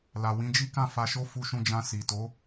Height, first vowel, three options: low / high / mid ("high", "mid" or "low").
low